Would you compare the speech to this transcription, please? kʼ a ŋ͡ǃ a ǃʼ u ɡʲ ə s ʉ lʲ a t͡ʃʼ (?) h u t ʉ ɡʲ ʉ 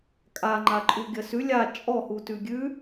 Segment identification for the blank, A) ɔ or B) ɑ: A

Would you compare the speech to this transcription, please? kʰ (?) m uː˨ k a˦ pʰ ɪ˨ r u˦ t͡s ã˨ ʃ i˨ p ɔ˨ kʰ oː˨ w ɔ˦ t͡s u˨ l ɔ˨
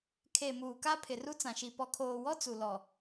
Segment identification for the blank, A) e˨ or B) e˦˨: A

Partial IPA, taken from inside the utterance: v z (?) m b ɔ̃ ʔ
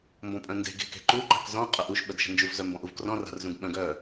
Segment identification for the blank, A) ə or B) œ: B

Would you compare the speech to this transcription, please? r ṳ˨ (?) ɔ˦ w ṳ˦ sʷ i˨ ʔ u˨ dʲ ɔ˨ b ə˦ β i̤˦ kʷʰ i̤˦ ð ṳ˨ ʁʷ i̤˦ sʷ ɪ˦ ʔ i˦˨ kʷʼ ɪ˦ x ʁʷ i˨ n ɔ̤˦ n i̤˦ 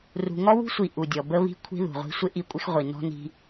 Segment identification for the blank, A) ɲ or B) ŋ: B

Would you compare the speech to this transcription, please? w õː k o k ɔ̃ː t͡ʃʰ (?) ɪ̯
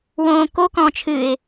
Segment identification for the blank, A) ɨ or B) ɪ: A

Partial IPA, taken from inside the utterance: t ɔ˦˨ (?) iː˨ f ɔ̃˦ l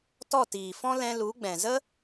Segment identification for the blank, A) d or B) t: B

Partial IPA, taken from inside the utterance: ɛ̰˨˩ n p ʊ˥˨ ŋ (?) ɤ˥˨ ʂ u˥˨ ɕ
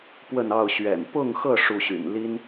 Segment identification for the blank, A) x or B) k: A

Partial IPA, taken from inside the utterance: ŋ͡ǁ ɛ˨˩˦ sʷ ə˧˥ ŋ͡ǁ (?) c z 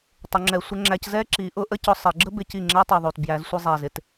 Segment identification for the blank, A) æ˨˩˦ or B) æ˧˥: B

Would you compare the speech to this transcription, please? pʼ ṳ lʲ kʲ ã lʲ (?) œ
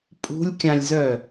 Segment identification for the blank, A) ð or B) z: B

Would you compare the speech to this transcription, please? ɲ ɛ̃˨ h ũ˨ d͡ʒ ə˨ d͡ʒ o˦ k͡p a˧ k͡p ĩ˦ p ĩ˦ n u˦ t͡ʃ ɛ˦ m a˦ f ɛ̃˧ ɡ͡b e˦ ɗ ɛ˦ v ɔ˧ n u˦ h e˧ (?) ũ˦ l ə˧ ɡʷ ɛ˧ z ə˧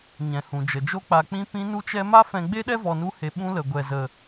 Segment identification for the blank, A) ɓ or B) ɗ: A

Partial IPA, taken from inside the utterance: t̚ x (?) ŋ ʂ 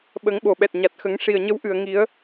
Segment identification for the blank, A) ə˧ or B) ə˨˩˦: B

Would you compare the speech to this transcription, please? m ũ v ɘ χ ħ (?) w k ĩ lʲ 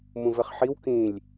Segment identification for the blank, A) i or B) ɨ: A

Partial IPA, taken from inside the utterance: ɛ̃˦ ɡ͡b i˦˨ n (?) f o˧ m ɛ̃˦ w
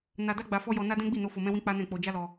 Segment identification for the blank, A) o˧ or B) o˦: A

